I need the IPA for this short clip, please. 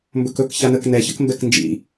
mbɵkɵk çanək nɛ çəkmbɛknd͡ʒḭ

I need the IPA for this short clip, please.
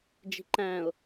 d͡ʒi̤ǃæ̃ʊ̯

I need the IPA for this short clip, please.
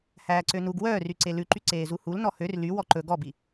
hæːǀønuɡ wœːryǀe lʉǃy ǀeːzuhul nɔhør ly wɔǃɵ ɡɔbi

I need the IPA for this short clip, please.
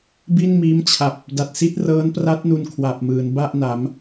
bi˥˩nmiː˦˥mt͡ɕʰa˨˩p̚ | da˨˩t̚ si˦˥t̚rɤː˦˥npra˦˥t̚nu˧n kʰwa˨˩p̚mɯː˩˦n ba˥˩ʔna˩˦m

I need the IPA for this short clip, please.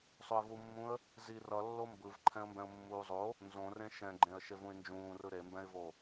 sˤoɪ̯vumːũə̯ | zi rʌlːo mbɯv ǃʰɛ̃ə̯mbɛ̃ʊ̯mːuːzˤo | nzõrẽ ʃɛ̃ɡ͡ǃẽə̯ ʃevũɪ̯nd͡ʒũːrɯ ɾembɛ̃ɪ̯vo

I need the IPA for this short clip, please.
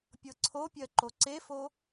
pʲɤǀʰopʲɜ ǃoǀefo

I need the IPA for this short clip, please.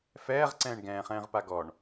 fɛːʁǀɛ̃ːɳ ɡɛ̃ːχɛ̃ːʁpa ɡɔɳ

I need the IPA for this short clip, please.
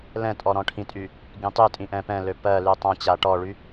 lɛ̃tʼɔ ɾɔ̃ʈʰĩtʼy | ɡĩtˤytʼĩ ʔɛ̃pɛ̃lø pɜ lytˤãt͡ɕa ʈɔɭy

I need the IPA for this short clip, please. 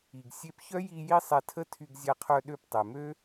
i˨ɡ sʲe˧pçœ˦ji˧ ji˦sˤɛ˧tʰə˦ tʰy˧ɡzʲa˧qʰœ˧ ɗø˧ptˤɛ˨mø˦

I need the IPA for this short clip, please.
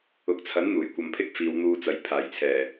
ʊ˨˥k̚t͡sʰɐ˨˥nn̪uː˨˩jkʷɐ˨m pʰɪ˥k̚fiː˨˧wn̪uː˧t͡sɐ˨˧j pʰaː˨˩jt͡sʰɛː˨˩

